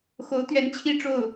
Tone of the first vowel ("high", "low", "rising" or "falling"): rising